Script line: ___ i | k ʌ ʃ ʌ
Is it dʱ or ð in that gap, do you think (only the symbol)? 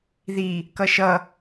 ð